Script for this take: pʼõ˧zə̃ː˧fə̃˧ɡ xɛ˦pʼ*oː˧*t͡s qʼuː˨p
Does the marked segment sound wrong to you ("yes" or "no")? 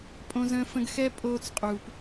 no